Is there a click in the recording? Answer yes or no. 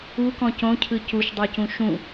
no